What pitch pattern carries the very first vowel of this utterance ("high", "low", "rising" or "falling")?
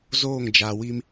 falling